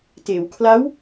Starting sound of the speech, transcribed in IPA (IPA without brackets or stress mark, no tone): t